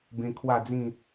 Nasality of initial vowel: nasal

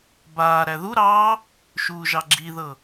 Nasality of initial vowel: oral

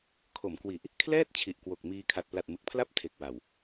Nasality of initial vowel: oral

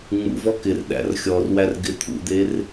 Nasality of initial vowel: oral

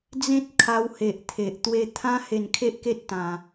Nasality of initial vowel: nasal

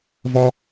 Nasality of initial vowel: oral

